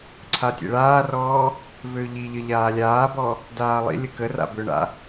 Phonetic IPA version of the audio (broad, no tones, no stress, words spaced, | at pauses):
ǀʰatʲḛɭaːrɔː | vøʎiʎə ʎaːlʲaːbɔ | daːlˠḭlʲə kə ra̰bʏɳa̰